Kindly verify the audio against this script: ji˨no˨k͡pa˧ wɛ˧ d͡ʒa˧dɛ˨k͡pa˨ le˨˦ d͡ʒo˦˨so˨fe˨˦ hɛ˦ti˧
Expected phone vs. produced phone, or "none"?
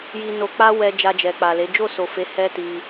d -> d͡ʒ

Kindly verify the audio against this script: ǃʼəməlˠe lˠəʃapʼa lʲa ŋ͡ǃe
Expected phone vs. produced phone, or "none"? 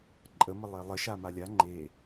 pʼ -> m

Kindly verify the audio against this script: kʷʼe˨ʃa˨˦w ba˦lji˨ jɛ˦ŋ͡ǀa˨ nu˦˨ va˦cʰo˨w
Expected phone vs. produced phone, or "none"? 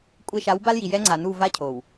none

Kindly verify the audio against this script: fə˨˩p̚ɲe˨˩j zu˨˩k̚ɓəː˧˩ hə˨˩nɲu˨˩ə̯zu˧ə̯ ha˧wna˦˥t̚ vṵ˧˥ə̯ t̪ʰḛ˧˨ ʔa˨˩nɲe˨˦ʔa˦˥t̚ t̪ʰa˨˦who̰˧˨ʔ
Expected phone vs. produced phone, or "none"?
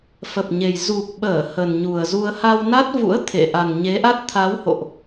none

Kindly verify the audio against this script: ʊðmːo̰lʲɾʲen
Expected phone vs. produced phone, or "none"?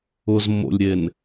ð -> z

